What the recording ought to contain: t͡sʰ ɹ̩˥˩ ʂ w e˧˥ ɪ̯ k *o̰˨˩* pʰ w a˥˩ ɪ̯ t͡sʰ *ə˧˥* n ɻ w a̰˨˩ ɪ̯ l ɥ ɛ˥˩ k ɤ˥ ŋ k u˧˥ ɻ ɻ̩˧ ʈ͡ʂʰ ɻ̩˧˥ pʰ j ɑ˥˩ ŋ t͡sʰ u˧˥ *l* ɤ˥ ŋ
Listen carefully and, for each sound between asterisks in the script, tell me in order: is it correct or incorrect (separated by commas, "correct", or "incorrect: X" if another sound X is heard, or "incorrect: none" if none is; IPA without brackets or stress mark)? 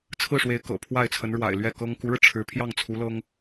incorrect: ɤ̰˨˩, correct, correct